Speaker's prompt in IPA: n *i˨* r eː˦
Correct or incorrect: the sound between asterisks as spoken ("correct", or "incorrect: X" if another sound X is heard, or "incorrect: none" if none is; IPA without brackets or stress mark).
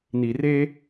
correct